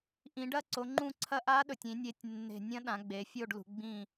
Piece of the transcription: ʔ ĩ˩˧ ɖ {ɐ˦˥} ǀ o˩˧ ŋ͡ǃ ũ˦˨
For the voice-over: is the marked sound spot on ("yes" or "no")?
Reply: yes